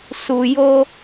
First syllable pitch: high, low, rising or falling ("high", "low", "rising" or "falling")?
low